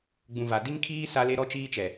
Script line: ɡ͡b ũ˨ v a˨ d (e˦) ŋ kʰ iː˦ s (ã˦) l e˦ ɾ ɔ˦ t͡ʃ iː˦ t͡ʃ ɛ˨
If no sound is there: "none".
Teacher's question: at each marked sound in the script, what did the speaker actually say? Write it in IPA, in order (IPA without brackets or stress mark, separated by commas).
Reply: i˦, a˦